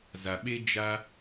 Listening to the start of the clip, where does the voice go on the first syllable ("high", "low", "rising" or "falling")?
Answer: low